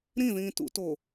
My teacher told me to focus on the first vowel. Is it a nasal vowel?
yes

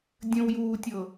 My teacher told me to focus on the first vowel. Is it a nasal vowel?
yes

